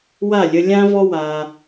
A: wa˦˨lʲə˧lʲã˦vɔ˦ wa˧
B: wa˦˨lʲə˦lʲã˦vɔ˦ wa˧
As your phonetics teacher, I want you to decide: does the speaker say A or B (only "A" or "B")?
A